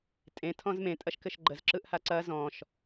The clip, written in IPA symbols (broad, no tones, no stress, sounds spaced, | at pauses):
tʼ ẽ tʰ ɔ̃ z m ẽ tʼ ɐ ʃ k ɘ ʃ ɡ͡ǃ ə z ǁ ɯ ʔ h a ǀ ɐ z ɔ̃ ʃ